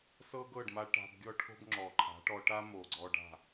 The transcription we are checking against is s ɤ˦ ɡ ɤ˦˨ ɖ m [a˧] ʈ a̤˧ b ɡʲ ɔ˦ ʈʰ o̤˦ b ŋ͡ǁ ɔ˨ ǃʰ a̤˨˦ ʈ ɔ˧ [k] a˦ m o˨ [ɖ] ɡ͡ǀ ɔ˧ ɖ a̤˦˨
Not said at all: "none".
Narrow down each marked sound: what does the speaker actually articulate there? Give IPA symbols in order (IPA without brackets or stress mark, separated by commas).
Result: a˧, ʈ, none